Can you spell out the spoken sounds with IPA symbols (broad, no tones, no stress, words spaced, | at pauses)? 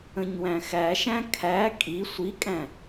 ə̃ɲwæ̃xæʃæ̃ kʰæ kʼi sʷikʼæ̃